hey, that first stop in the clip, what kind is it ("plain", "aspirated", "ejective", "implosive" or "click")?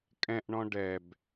ejective